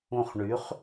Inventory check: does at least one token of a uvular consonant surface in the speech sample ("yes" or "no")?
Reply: yes